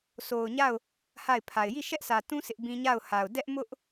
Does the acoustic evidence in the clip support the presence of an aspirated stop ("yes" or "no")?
yes